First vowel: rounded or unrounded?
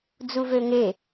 rounded